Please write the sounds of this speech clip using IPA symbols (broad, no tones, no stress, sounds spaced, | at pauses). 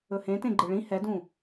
ɵ h ẽ t ẽ ɡ͡ǃ ɯ ɭ ĩ h ɛ d ũ